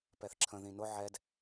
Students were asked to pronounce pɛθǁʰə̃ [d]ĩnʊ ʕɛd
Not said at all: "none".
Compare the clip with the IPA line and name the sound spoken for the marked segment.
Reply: ð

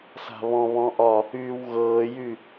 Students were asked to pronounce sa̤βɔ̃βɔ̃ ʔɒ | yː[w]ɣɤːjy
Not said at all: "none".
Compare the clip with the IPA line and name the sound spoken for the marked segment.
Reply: w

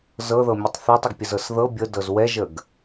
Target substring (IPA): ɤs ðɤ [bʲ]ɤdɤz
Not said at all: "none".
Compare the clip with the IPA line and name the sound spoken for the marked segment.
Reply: bʲ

